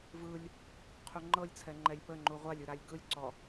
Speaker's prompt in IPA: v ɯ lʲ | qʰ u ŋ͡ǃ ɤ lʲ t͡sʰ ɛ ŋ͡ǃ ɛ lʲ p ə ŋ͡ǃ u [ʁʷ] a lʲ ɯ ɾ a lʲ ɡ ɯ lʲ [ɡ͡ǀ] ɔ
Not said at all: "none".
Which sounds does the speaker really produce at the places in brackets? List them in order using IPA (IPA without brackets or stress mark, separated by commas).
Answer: ʁʷ, ǀ